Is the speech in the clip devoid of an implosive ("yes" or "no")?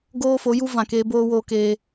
yes